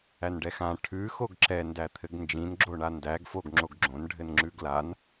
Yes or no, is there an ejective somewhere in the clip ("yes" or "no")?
no